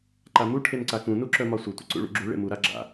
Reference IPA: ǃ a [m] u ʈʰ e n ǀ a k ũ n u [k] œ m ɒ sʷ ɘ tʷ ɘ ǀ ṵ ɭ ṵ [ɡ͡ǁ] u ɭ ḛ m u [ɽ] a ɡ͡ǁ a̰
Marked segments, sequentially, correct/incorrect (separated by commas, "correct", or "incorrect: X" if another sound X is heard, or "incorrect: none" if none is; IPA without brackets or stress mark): correct, incorrect: ǁ, correct, incorrect: ɾ